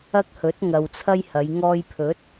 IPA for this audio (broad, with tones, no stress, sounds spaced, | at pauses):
ɐ˥ k̚ h ɵ˨˥ t̚ ŋ ɐ˨ w t͡sʰ ɐ˥ j h ɐ˨˧ j ŋ ɔː˧ j pʰ ɵ˨˥ t̚